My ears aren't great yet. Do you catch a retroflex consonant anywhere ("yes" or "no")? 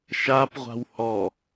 no